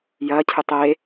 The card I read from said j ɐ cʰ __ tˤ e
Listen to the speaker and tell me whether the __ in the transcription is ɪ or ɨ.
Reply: ɨ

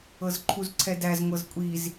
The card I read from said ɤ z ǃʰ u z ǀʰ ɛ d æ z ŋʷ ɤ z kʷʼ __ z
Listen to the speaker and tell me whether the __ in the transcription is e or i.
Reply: i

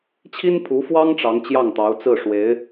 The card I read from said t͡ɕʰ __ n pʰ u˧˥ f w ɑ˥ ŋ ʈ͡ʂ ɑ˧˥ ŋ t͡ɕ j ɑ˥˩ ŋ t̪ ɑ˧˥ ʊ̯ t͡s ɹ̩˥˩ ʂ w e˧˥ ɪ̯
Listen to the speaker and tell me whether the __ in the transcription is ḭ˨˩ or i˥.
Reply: i˥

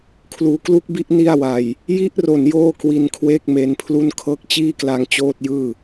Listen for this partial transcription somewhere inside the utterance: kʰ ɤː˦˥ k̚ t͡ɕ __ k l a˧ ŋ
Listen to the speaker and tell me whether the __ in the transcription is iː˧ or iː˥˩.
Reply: iː˥˩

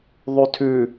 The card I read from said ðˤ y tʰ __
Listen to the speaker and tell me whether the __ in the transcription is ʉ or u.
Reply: ʉ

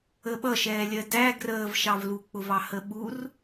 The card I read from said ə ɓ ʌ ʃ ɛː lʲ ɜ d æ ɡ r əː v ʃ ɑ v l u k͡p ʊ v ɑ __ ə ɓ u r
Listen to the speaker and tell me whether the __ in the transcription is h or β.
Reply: h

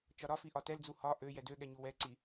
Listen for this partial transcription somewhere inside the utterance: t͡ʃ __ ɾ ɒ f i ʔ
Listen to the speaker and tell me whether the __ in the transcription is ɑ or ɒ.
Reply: ɒ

